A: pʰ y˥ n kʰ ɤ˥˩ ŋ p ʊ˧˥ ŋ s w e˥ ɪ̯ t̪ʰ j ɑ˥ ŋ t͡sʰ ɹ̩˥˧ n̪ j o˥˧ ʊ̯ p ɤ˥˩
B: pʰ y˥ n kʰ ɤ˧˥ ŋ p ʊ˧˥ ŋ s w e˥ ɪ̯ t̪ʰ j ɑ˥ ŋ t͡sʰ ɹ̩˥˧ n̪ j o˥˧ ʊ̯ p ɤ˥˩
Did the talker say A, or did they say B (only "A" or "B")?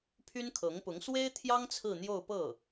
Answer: B